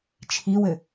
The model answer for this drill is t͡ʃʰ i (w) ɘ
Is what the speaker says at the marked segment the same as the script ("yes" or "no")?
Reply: yes